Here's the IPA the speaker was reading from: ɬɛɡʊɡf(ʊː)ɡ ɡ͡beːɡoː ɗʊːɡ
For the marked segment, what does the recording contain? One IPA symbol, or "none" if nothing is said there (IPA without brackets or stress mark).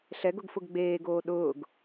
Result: ʊ